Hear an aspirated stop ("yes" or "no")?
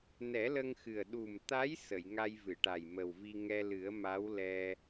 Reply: no